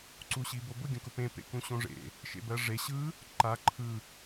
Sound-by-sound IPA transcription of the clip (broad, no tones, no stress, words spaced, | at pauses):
ǀuɕibobʊ ɡʲõkʊpẽ pḛkũɕõʐḛ | ʃḛbɜʐe ɕɯ | ǃa ǃʰɯ